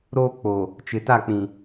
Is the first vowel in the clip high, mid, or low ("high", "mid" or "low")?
mid